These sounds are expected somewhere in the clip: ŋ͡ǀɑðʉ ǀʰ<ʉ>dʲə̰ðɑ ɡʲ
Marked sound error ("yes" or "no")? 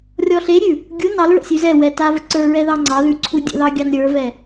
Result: yes